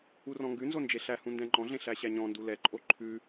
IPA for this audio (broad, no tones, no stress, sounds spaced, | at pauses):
u r ɔ̃ ŋ ɡ ʉ n z o n d͡ʒ e ɬ æ h ũ n d ɛ̃ ŋ͡ǃ ɔ̃ ɮ ẽ ɬ æ ɕ æ ɲ ɔ̃ n d u l ɛ ǃʼ o ǃʰ ʉ